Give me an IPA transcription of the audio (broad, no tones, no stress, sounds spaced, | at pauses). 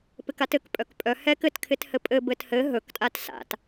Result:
p ɪ k a t ɘ k pʼ œ k pʼ œ h ɛ k ɘ t kʰ ɪ t h ɘ pʼ ɘ b ɘ t h ɘ ɦ ɵ k tʼ a t s a̰ t